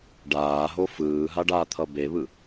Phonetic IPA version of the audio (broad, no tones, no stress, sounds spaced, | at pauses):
ɖ aː ɦ o f ɯː ɦ a ɖ a t̪ʰ ʌ b e β ɯ